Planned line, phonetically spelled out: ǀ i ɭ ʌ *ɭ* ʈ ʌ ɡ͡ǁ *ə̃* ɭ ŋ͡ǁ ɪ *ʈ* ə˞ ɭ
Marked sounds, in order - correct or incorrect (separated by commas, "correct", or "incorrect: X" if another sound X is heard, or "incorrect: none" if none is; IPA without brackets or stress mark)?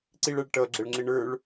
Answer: correct, incorrect: ə, incorrect: ɳ